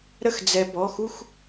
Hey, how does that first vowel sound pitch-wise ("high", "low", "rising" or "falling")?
falling